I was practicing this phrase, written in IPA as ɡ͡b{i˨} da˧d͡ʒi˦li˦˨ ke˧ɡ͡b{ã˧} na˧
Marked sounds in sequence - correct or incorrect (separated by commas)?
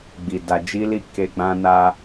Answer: correct, correct